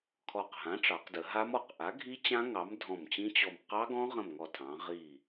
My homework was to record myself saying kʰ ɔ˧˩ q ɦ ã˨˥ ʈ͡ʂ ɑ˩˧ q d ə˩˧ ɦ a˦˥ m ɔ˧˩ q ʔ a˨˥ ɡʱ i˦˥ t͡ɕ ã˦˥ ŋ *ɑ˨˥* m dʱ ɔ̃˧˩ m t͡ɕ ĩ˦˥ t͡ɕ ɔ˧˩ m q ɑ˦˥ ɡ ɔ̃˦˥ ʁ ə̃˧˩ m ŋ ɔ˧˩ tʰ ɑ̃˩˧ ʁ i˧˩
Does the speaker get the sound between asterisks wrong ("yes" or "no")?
no